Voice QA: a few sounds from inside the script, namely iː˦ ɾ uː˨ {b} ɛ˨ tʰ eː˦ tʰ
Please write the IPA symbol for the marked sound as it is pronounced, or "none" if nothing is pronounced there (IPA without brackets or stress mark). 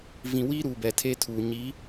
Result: b